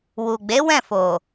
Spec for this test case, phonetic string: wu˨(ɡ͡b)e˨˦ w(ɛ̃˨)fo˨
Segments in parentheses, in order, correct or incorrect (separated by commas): correct, incorrect